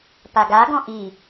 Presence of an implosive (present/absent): absent